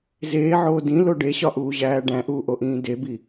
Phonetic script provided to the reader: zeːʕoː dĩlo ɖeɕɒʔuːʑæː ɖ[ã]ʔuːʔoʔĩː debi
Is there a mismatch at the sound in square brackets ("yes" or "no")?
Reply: yes